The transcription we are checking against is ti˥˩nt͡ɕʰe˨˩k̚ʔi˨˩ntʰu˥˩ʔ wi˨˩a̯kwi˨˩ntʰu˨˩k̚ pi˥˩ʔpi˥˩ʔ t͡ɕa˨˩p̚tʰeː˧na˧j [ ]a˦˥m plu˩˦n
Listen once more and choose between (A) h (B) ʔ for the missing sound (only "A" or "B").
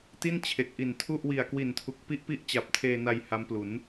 A